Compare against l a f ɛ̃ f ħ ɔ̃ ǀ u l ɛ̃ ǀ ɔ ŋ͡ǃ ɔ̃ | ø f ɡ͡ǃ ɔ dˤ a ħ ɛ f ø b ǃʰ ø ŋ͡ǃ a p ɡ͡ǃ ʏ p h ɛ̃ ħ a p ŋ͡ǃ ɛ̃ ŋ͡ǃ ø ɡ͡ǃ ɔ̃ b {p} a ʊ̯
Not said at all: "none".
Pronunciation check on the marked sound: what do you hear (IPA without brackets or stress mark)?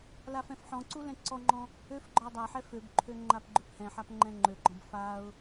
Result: f